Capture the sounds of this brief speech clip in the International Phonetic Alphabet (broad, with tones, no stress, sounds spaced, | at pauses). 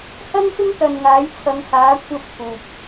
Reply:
h ɐ˥ ŋ f ɪ˥ ŋ t̪ ɐ˨ n ŋ aː˨˥ j t͡sʰ ɐ˨˧ ŋ h aː˨˥ kʷʰ ɐ˧ p̚ t̪ʰ uː˨ p̚